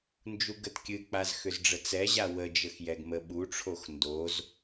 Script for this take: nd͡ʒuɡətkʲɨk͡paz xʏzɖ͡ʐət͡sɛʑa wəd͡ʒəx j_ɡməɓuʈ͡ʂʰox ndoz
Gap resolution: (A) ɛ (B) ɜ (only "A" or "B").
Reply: A